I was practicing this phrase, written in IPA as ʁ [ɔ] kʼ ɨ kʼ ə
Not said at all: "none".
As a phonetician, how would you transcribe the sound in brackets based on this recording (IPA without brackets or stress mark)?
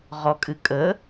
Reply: ɔ